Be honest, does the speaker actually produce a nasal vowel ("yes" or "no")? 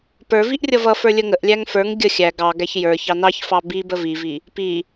no